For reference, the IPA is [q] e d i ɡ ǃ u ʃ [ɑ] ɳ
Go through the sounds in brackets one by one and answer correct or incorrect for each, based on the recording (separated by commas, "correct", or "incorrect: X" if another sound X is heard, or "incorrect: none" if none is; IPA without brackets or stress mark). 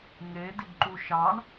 incorrect: ŋ, correct